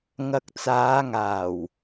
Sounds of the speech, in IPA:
ŋɐ˨k̚ t͡saː˨˧ŋaː˨˩w

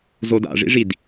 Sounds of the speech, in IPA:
zoda̰ʐḭʐid

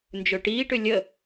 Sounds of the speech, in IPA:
nd͡ʒøʈiːʈʏ lʲə

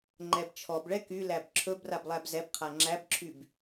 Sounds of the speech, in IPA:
ŋ͡ǃɛbt͡ʃʰɔbɭɛ kylæb ǁʰɵbrab lˠæbzɛbqʰa ŋ͡ǁæbǁʰyb

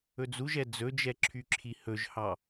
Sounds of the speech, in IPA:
ɵd͡zuʒɛ d͡zɵd͡ʒɛǁʰyǁʰi hɵʒhɑ

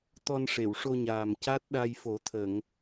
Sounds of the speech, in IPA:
t̪ɔ˧n ʂe˨˩˨wʂo˧ɲaː˨˩m ca˦˥t̚ɗa˧jfo˨˩˦t̪ʰə˨˩˨ŋ

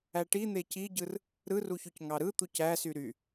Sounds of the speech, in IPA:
æʈi n̪eciɟɯr | ɾɯruçyc ŋɑɾɯ t̪ucæsy ɾy

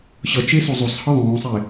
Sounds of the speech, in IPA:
ɕʌt͡ʃe sozˤosˤhɯ ðˤõːsˤe

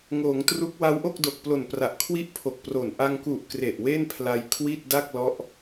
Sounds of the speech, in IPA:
ŋoː˩˦ŋtru˦˥k̚ wa˦˥wʔo˥˩k̚do˨˩k̚plo˨˩n pra˨˩ʔkʰwi˥˩ʔpʰo˨˩k̚pro˨˩n ʔa˧ŋku˨˩ʔ kre˨˩ʔwe˥˩npʰla˧jkʰwi˥˩t̚ da˥˩k̚lɔ˦˥ʔ

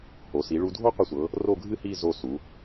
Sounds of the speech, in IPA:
ho˩˧ si˩˧ɭu˧dʱo˥ qʷɨ˧sʷɤ˩˧ | ro˥˧ɡʱɨ˥hi˥˧ zo˧˩ su˩˧

